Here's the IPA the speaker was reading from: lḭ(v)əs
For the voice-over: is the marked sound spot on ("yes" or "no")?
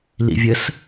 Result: no